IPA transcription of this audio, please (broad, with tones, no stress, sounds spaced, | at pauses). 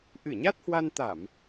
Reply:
ʔ ɨ˧˩ ɲ a˦˥ t̚ h w a˧ n t̪ a˧˩˨ m